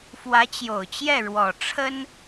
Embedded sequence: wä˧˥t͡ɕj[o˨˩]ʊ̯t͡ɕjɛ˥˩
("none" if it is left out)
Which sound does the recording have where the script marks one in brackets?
o˨˩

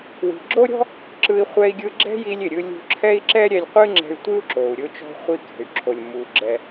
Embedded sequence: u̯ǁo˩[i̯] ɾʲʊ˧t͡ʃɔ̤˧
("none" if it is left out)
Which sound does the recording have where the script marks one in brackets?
u̯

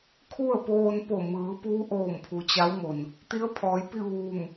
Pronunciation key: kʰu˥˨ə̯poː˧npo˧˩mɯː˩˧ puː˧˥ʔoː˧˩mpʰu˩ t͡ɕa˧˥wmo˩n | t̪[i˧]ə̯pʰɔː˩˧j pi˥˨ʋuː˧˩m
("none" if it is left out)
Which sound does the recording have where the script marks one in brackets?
i˧˥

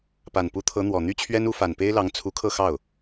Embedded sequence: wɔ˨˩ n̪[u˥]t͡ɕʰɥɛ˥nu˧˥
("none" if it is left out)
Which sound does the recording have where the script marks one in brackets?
y˥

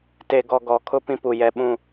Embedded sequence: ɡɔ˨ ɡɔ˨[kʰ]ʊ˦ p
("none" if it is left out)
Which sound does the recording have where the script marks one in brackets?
kʰ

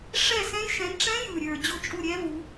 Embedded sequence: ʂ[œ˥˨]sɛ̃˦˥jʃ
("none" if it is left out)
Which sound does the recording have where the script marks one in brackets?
ɛ˥˨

